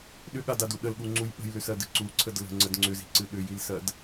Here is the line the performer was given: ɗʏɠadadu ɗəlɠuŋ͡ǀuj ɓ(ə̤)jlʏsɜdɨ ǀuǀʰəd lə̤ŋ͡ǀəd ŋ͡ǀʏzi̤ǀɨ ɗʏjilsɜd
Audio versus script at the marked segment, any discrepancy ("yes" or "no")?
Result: no